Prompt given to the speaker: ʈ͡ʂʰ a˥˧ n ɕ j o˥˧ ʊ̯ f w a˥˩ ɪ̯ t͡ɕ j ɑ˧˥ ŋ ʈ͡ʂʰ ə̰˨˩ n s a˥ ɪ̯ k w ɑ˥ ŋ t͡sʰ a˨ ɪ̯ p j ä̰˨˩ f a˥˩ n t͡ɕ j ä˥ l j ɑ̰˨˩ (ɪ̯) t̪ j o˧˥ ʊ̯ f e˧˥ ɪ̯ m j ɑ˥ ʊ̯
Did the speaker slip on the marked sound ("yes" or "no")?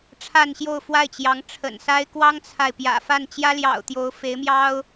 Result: yes